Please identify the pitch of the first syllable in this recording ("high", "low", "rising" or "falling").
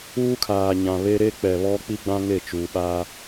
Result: high